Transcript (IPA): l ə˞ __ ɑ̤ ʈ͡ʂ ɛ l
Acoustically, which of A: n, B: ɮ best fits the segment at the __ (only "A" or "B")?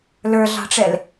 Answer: B